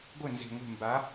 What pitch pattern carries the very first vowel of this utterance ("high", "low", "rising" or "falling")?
falling